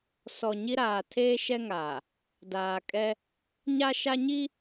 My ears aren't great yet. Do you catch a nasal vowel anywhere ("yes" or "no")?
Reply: no